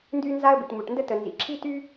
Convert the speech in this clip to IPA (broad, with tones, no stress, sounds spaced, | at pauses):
n d y˥ n z a˥ ə̯ b i˩ ʈ m u˩ ʈ n d ə˥ t ə˩ n z ḭ˩ ǁʰ i˥ t y˥